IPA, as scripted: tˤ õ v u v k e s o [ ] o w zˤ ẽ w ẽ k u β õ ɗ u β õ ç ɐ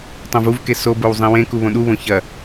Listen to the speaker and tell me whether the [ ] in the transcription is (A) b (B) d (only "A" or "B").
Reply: A